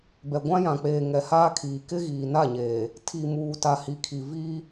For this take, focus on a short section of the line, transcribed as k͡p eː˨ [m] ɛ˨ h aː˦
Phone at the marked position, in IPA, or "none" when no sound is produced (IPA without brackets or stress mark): ŋ